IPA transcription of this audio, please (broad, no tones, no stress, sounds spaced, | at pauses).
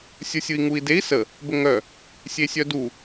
sʲ ə˞ sʲ ɯ i̯ ŋ u i̯ d e i̯ s ə | b ə ŋ œ | sʲ e sʲ œ d u